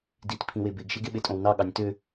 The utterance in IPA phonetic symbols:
dit pʰĩwebeɡʃeɡ eɓetʼõwnɑ ɠɑnʲtø

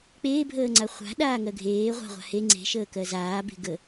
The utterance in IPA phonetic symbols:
k͡peːbʱəːŋ͡ǀa χʷa̤ ɗaːŋɜɡʱeː ʁʷa̤ʁʷa̤ he ŋ͡ǀe̤ ʃəːkɜzaːbe̤ ɡə

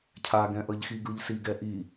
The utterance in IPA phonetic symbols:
cʰaɡɛ̃ʔʌʎxi ɡɯʎsiɡɛʔi

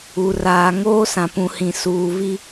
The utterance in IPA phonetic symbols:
u˨ raː˨ŋoː˦sã˨ pũ˨hĩ˨ suː˨vi˦

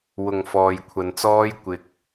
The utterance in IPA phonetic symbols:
wʊ˨ŋ fɔː˨jkʷʰɐ˨nt͡sɔː˧j kʷɪ˨k̚

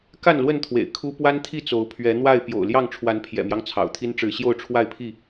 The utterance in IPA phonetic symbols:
ka˥˨nlwə˥˨nt̪ʰwḛ˨˩ɪ̯ kʰu˦ pwa˦nt̪ʰi˥˨t͡so˨˦ʊ̯ pʰɥɛ˨˦n̪wa˥˨ɪ̯ pjo̰˨˩ʊ̯ ljɑ˥˨ŋʈ͡ʂʰwa˨˦n pʰjɛ̰˨˩mjɑ˦ŋ t͡sʰɑ̰˨˩ʊ̯t̪ʰi˦n ʈ͡ʂɻ̩˨˦ɕjo˥˨ʊ̯ʈ͡ʂʰwa˥˨ɪ̯pʰi˥˨

